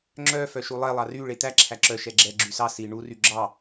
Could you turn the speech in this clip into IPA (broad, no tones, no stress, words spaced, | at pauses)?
ŋ͡ǁœ fœʃulˠɛ lˠɑry ɭet̪æ ǁʰæǁœ ʃɛɡ͡ǁɛ ɡ͡ǁysɑ si ɳu ryɡ͡ǁɑ